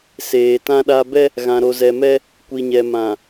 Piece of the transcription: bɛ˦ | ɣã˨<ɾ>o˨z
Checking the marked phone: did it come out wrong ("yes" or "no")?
no